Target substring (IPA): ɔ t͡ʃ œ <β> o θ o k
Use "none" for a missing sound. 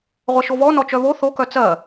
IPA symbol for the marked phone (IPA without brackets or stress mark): β